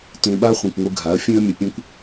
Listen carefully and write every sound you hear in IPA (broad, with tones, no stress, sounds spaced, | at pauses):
t ẽ˧ ɓ a˦ χʷ ã˧ kʷ ŋʷ ɯ˧ ɡʱ a˨˦ ɐ̯ fʲ ẽ˦ ɐ̯ mʲ ə˧ pʲ ẽ˦ kʷ